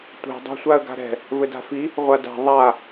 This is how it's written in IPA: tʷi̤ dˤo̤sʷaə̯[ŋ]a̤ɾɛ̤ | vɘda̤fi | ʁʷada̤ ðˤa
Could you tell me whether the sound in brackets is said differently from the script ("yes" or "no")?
yes